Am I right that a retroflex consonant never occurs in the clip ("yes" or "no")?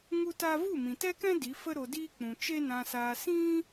yes